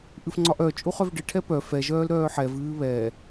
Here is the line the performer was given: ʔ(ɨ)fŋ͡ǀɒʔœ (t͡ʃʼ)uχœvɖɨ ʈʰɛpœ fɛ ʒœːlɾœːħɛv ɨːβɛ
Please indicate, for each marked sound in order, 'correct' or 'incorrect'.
correct, correct

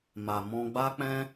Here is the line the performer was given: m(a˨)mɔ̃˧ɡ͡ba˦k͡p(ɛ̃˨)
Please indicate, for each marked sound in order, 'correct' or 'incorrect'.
correct, incorrect: ɛ̃˦

